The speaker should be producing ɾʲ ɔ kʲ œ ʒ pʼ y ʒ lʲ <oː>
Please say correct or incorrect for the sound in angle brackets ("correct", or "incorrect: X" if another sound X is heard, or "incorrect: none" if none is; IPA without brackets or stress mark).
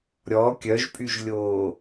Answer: correct